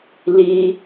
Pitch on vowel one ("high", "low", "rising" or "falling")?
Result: high